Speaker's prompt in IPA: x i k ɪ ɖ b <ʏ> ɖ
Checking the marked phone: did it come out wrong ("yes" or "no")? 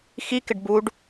yes